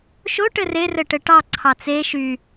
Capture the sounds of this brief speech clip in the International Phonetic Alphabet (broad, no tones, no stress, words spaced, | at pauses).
ʃoʈɘ rerɘ ʈɘʈɑ ǀʰɑt͡se ʃy